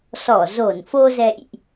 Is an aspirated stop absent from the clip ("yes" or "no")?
yes